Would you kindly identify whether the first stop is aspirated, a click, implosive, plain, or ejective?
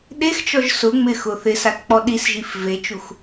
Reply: implosive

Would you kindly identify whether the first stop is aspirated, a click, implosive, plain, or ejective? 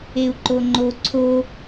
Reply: click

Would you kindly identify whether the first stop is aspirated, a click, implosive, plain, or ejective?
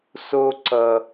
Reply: click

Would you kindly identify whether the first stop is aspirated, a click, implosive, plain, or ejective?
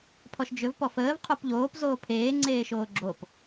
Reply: aspirated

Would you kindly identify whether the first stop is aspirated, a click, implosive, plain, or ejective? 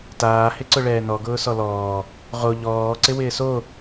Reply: plain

